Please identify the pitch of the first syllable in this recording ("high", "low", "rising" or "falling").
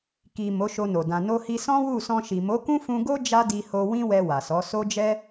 low